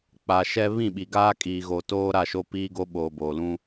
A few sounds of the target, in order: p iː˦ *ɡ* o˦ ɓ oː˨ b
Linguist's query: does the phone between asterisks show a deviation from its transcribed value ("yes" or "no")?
no